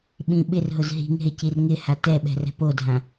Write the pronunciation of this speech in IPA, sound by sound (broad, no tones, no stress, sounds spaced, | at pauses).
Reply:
ɓ ĩ ɓ ɪ r ɦ ʊ z ɦ i̤ ŋ ɦ ɪ c i r ŋ ɪ h a t ɛ ɓ ɛ̤ r ɛ̤ p o dʱ ã